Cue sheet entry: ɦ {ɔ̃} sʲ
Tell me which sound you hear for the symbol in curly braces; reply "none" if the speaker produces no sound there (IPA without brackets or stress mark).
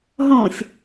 ɔ̃